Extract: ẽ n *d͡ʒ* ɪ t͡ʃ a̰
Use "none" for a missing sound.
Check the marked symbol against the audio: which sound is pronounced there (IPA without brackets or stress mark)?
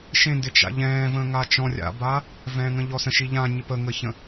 d